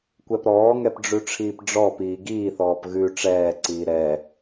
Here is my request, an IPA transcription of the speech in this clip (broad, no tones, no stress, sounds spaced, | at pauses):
kʷ ɛ p ɾ ɔː ŋ ɛ p ɖ͡ʐ ʉ ʈ͡ʂʰ iː p ɖ͡ʐ ɔ p iː ɡ iː θ ɔː p ɣ ʉ ʈ͡ʂ ɛː ǀ iː ɾ ɛ